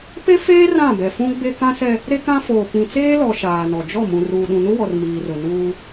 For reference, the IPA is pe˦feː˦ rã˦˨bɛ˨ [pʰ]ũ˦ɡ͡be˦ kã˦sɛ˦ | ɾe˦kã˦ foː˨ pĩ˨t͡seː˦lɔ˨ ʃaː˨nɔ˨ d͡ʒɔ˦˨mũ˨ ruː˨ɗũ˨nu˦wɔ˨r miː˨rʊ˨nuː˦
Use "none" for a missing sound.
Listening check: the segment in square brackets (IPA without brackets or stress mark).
f